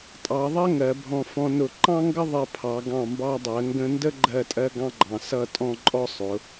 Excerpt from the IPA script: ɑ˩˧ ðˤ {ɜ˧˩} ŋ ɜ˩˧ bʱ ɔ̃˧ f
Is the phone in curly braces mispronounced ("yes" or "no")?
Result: yes